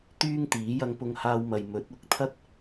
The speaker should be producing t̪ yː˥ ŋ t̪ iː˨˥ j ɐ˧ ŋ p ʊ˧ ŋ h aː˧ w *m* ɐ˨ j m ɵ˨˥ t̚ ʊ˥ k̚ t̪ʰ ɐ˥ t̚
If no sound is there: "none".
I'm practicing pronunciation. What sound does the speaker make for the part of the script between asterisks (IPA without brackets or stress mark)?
m